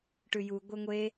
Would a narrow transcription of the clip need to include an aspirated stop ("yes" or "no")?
no